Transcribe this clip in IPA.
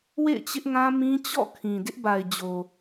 w ḛ˦˨ ɪ̯ t͡ɕ ɪ˦ ʔ ŋ ã˦ m ĩ˦ t͡ɕ ɔ̰˦˨ kʰ ĩ˨ d ɪ˦ ʔ b a˨ ɪ̯ d͡ʑ o˨

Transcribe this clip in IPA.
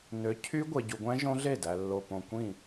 n ø˨˥ cʰ y˦˥ ɡʷ e˨ ɟ u˨ ɡʷ æ̃˦˥ ʒ õ˦˥ ɮ e˥˩ d æ˨ lː o˨ p õ˨ kʷ ĩ˥˩

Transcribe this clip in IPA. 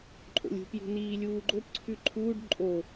ǃʼ o̰ lʲ ṳ p j ṳ n iː lʲ uː ɡ͡ǃ o p ǀʰ ʉ ǃʰ uː ɖ ǃʼ o

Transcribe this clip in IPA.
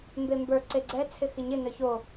m b e m b ə˞ ǀ e ɡ͡ǀ ɛ t͡sʰ ɪ x ɪ ɲ ɪ n œ ç o

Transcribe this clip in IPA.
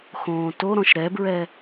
x õː t o ɾ ɔ̃ ʃ ɾ ɛ b ɹ ɛ

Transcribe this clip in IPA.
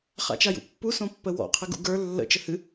χ a̰ t͡ʃ a j ṵ pː u s õ pː ə w ɔ̰ qʰ ɨ ɡ ṵ ɡ ə˞ lː ə̰ t͡ʃ ə h ɨ

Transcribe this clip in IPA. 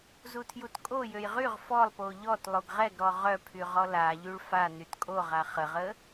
z u tʰ j u t kʼ o j ø j ʁ y ʁ f ɔ lˠ p o ʎ ɔ t lˠ o ɡ ʁ ɛ ɡ ɾ ɔ ʁ œ pʰ y ʁ ɔ l a ʎ y ɭ f a n y t kʼ o ʁ a χ ə ʁ ə

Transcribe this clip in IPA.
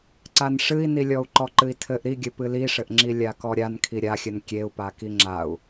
ǀ a n ʂ ɨ i̯ n i lʲ ɔ u̯ ǃ ɔ ǃ ɨ i̯ tʰ ɘ ʔ ɾ i ɡʲ ɘ p ɨ l i ʂ ɘ ʔ ŋ͡ǁ i lʲ a k ɔ ɾʲ a n kʰ i ɾʲ a xʲ ɘ n kʲ e u̯ p a k i ŋ͡ǁ a u̯

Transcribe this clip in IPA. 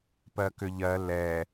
p ɜ k ʏ ʎ ɜ l ɛ

